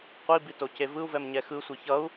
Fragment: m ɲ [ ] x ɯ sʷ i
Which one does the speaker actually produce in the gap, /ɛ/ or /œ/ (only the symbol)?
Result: ɛ